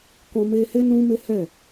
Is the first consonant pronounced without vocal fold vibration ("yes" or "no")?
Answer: yes